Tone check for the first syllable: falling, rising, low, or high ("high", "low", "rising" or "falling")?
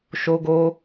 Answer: high